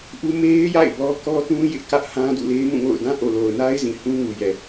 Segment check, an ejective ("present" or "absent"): absent